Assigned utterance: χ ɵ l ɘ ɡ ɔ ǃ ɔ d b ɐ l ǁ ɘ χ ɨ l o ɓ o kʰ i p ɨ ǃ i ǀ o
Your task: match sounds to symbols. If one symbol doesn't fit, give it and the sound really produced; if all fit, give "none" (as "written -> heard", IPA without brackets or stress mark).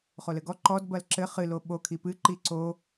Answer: ɵ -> o